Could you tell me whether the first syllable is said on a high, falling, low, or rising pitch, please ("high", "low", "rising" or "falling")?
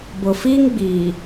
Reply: low